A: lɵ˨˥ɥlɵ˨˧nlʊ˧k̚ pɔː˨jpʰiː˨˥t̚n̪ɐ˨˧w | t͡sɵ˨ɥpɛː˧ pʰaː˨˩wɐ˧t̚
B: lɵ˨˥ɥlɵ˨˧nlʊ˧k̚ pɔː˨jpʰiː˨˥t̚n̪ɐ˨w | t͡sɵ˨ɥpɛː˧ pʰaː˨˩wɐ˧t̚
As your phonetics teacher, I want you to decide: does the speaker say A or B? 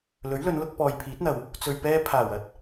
B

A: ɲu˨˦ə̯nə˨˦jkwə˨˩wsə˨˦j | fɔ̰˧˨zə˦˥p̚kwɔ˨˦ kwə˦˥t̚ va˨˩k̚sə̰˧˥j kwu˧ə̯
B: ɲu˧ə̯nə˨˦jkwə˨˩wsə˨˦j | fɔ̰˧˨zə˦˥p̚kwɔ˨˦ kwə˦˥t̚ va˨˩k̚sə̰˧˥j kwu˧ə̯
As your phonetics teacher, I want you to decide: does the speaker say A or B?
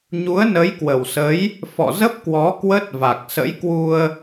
A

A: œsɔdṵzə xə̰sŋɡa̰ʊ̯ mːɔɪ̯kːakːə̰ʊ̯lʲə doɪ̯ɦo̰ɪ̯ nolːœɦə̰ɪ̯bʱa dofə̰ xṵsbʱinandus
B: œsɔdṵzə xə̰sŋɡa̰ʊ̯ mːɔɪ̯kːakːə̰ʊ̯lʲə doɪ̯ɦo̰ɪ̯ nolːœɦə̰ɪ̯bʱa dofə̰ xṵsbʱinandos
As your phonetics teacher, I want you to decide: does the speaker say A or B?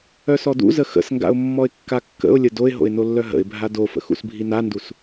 A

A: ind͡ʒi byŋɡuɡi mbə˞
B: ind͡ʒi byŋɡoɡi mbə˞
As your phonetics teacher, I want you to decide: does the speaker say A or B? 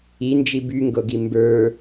B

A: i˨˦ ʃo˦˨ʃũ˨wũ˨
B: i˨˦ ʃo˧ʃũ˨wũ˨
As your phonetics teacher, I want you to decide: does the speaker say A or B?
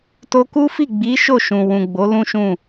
A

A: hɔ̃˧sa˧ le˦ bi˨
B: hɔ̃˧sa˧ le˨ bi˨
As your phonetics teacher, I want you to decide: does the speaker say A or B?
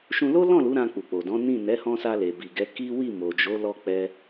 B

